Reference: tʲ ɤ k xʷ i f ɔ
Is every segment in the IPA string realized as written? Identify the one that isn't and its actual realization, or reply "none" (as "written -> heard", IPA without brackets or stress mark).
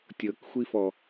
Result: none